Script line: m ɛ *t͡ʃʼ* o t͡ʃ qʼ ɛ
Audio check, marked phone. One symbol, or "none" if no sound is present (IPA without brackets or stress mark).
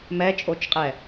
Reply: t͡ʃʼ